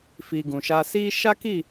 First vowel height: high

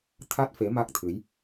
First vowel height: low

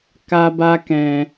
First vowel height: low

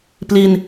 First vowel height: high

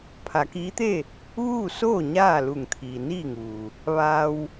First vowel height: low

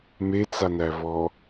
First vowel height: mid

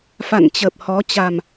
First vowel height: low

